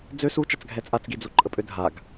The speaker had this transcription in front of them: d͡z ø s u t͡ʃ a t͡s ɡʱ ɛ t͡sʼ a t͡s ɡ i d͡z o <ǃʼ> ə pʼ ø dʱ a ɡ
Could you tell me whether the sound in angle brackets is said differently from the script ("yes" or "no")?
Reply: no